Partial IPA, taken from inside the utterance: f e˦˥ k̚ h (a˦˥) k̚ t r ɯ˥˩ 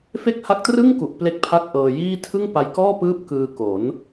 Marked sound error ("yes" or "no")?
no